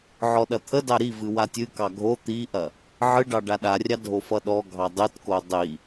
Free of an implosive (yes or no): no